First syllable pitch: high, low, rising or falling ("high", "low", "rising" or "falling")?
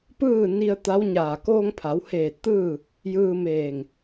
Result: falling